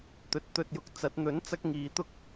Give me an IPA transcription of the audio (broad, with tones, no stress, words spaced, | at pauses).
t̪ɵ˨t̚t̪ɵ˧t̚ jʊ˧k̚ t͡sɐ˨˥t̚ n̪ɵ˨˥n t͡sɐ˥k̚ŋiː˨˧ t̪ʊ˥k̚